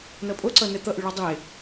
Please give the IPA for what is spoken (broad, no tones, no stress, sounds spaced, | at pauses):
n ʌ pʼ o ǀ ʌ n ɛ t̪ ʌ ʔ y ɭ ɔ dˤ e